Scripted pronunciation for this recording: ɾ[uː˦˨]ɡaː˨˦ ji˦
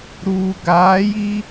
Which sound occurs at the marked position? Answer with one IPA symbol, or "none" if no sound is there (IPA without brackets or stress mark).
uː˨